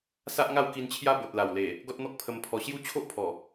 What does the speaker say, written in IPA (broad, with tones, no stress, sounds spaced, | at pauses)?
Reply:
s a˦ ʔ ŋ a˥˧ w k i˧ n t͡ɕʰ j a˦ b o˨ t̚ l a˨˩ w l e˨˩ | ɡ ɔ˦ t̚ n̪ ɔ˦ k̚ pʰ ə˧ m pʰ ɔ˧ ɕ j u˦ t͡ɕʰ o˦ ʔ pʰ ɔ˨˩